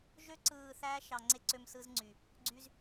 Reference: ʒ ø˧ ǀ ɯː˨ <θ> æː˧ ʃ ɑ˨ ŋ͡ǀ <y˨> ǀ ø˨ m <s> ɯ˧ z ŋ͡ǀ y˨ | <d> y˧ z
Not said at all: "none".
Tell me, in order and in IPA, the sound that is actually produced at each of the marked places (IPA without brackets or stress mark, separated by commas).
θ, e˨, s, ɡ͡ǀ